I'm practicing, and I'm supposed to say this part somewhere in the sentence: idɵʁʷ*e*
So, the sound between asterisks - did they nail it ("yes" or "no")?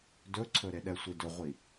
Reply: no